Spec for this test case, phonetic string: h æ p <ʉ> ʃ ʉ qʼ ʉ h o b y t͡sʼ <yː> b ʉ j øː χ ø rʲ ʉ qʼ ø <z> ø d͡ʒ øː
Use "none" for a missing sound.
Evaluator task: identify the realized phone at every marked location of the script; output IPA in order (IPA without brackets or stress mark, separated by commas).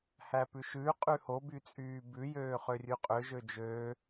ʉ, yː, ʒ